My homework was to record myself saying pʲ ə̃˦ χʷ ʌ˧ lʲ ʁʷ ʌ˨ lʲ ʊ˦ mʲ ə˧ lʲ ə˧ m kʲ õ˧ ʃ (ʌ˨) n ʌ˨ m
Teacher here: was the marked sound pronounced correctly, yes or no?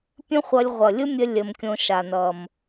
no